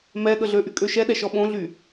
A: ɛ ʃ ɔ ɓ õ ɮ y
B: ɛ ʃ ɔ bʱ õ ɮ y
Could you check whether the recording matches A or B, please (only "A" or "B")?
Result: A